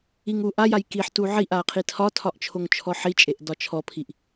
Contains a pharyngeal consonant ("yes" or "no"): yes